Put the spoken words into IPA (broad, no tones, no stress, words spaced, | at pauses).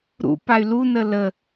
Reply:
ɾṵ pay̯lunə lə